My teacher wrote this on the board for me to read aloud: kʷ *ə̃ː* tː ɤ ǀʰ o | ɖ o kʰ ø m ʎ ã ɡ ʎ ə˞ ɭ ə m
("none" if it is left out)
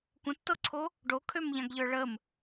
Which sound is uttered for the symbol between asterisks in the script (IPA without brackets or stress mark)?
ə̃